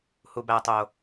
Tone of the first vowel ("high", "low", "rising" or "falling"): low